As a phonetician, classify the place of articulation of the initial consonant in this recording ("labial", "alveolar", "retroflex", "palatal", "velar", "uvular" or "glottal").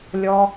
alveolar